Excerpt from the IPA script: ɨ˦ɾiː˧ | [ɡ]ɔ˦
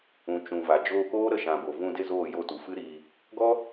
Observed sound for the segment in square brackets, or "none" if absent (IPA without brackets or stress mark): ɡ